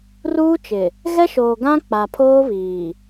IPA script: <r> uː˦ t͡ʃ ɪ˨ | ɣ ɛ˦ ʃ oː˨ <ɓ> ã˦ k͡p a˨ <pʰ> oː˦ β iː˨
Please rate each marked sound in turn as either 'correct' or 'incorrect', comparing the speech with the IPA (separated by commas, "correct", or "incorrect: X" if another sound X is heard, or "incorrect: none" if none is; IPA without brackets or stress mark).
correct, incorrect: ɡ, correct